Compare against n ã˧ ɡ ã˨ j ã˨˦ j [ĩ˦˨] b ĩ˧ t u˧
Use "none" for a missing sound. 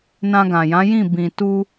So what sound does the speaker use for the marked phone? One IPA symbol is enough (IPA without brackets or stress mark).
ĩ˦˨